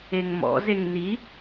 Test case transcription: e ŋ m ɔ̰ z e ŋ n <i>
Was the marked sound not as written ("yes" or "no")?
no